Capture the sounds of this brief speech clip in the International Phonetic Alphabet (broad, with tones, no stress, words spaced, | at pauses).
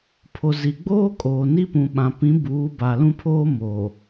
pʰo˨zi˨ɡ͡boː˦ kʼoː˨ni˦ pũ˨ɓã˨pĩ˨˦ buː˨˦ba˨lũ˦pʰoː˦ moː˨